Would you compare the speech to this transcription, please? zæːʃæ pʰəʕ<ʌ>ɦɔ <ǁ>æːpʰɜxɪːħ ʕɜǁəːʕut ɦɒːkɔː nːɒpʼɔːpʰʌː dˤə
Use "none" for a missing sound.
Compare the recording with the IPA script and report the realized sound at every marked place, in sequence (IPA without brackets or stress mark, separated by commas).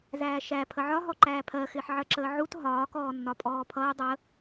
ɒ, ǃ